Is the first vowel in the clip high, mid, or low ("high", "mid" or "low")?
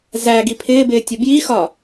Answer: low